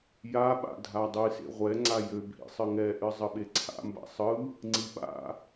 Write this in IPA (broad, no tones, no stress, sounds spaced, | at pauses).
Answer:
j a ɓ a̰ dʱ a dˤ ɨ s ḛ ʁʷ ɛ ŋ͡ǀ a j ø bʱ ḭ sˤ ɨ ŋ ɛ ʔ ɨ zˤ ə ɓ e ǀʰ a̰ m b a̰ sˤ ɯ | ŋ͡ǀ i ɓ a̰